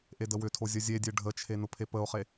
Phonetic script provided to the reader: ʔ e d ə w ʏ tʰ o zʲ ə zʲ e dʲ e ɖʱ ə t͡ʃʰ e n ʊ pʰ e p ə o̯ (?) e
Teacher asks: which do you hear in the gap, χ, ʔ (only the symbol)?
χ